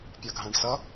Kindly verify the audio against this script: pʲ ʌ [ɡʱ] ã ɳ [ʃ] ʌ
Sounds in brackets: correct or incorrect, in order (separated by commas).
correct, incorrect